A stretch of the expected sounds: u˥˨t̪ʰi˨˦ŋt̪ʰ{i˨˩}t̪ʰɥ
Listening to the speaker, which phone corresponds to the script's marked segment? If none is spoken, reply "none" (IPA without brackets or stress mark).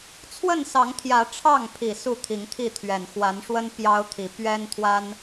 i˥˨